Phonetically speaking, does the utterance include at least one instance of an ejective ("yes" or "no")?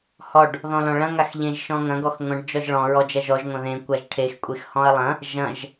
yes